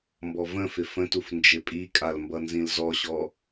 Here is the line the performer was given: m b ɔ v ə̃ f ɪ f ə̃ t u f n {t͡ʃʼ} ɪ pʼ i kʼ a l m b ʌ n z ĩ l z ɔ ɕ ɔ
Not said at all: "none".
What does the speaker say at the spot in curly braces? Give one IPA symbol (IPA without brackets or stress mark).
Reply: d͡ʒ